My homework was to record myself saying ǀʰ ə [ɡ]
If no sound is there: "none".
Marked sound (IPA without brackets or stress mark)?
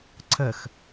x